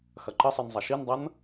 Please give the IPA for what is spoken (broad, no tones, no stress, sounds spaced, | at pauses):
x ɐ ǃ ə sˤ i n zˤ ɐ ʃ i n dˤ ʌ n